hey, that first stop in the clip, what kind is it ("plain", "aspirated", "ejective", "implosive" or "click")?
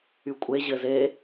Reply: ejective